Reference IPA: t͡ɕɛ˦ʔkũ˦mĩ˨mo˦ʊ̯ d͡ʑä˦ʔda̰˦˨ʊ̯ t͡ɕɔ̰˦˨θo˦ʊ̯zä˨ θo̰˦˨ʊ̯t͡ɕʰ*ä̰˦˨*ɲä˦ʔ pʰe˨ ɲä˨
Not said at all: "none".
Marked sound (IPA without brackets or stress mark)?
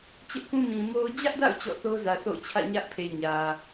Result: ä̰˦˨